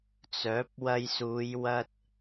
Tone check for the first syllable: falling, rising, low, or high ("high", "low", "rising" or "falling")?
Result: rising